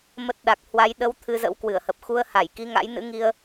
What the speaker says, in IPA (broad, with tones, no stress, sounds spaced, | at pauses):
m ə˦˥ t̚ ɗ a˨˩ k̚ h w a˧ j ɗ ə˨˦ w t̪ʰ ɨ˧ z ə̰˧˥ w k w ɨ˧˩ ə̯ h ə˨˩ p̚ x u˧ ə̯ h a˧˩ j k i˨˦ ŋ a̰˧˥ j n ɨ̰˧˥ ŋ i˧ ə̯